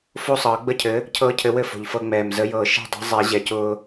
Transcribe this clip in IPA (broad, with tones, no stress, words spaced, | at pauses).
fo˥˩sˤɤː˨˩˦ɡ͡bə˥˩cʰɘ˨˥ | cʰɤː˦cʰɘ˨˥ wɘ˥˩fo̤˨˩ʎ fɤ˦ŋ͡mɛː˨˩m zə˨˥jɤː˨˩˦ ʃɛ̤˥˩dˤe̤˨˥zˤɛ˨˩˦ ʑɛ˨˩cʊː˦